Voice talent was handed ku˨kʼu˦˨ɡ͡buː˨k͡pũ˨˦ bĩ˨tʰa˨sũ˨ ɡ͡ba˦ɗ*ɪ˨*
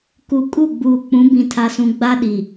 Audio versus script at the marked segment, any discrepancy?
yes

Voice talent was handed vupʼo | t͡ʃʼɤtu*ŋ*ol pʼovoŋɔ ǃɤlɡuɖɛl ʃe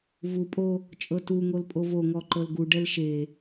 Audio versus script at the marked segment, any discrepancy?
no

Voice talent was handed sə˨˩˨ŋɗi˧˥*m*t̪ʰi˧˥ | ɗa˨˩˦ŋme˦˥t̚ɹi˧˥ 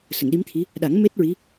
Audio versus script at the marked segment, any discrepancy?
no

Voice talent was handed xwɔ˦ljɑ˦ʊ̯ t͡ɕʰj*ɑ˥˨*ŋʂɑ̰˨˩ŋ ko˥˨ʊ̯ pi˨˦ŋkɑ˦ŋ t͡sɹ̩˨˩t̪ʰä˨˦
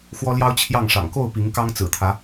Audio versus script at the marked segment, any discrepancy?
no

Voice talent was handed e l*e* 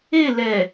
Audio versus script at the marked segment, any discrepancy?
yes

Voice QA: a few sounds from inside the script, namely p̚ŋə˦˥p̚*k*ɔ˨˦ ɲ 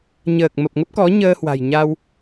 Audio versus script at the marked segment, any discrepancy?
no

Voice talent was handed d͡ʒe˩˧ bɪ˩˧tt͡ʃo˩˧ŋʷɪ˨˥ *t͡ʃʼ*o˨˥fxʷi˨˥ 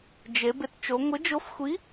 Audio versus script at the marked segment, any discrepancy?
yes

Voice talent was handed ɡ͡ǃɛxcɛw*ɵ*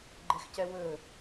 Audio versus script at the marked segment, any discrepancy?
no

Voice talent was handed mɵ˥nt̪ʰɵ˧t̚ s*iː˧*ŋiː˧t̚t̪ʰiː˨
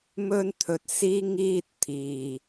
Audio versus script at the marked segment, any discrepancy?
no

